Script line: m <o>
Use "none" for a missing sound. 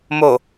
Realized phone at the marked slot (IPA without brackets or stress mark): o